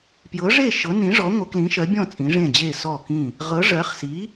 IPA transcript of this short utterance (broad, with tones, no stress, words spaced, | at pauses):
pjɤ˨˥ʐe˥˨ ʃɤ˨˥nĩ˨˥ʐɔ˨˥ ŋʷɤ˨˥klĩ˨˥ʃɜ˨˥bʲɔ̃˥˨ t͡sʼĩ˨˥ʐẽ˥˨d͡ʑe˥˨ sɔ˥˨kĩ˥˨ | ʁɤ˨˥ ʐɜ˨˥χ si˨˥